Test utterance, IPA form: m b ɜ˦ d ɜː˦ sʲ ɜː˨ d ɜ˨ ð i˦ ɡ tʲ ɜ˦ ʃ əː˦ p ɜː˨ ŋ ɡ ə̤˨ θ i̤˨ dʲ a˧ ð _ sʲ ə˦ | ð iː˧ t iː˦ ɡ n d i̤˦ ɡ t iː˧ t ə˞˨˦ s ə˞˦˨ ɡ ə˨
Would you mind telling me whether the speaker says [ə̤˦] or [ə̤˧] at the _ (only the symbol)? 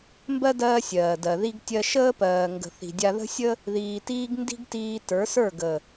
ə̤˦